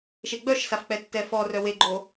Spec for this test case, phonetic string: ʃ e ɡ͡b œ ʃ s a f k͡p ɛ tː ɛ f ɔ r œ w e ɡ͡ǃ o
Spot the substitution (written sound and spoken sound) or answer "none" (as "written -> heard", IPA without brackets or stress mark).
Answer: none